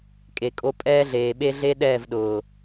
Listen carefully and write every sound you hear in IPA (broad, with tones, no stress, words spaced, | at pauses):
kʼe˨kʼo˧ pʼɛː˦ɮeː˨ɓe˦ɮe˦ ɗɛː˦˨vɗʊː˨